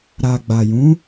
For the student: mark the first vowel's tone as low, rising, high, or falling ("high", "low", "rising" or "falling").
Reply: low